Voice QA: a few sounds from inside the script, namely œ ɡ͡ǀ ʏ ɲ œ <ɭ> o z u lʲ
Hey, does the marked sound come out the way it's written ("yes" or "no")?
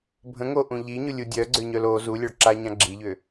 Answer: no